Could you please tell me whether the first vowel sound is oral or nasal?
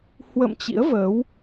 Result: oral